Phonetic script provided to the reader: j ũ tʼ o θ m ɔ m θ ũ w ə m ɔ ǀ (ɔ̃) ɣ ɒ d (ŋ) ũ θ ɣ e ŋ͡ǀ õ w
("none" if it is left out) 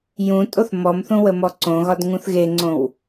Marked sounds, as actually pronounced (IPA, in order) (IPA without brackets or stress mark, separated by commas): õ, ŋ